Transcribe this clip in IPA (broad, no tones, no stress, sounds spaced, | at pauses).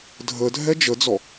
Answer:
dʱ ə dʱ ɛ d͡ʒ ə d͡z ɔ